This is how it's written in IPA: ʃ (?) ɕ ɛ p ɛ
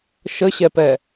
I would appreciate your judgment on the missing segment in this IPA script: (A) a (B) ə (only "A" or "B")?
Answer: B